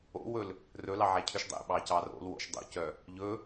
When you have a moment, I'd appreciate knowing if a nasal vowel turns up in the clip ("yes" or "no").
no